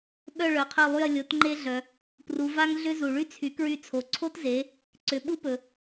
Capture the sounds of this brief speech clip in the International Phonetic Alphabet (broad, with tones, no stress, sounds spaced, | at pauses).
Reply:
ɓ œ˦˨ ɭ œ˩˧ qʰ œ˦˨ lˠ y˦˨ ɐ̯ lʲ o˩˥ t ŋ͡ǃ e˦ ɮ œ˩ | p r u˩˧ v a˦ ŋ ɮ ʏ˦ z u˩ ɭ y˦ t͡sʰ y˩˥ k ɹ y˦˨ t͡sʰ o˩˧ ǀʰ o˦ t z e˩˧ | ǀ ʏ˩˧ ɓ u˦ p ɵ˩